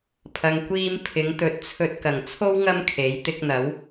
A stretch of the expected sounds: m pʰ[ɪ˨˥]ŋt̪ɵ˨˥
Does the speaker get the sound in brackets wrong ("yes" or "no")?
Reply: no